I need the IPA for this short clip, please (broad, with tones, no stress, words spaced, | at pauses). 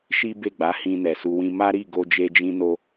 ʃi˦be˦˨ɡ͡ba˨˦hĩ˧ nɛ˨su˧wĩ˦ ma˦ɾi˦˨ɡo˧d͡ʒe˧ d͡ʒĩ˧no˧